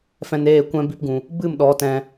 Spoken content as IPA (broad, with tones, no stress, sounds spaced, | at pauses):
f ɛ̃˧ n eː˦˨ kʷ ɛ̃˦ b i˦ p ɡ ũ˧ | b ɨ˦˨ m ɗ ɔ˨˦ t ɛ̃˧